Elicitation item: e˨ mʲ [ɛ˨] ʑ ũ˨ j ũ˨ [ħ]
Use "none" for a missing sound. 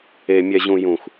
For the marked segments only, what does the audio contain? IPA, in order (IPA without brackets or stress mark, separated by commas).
ɛ˨, x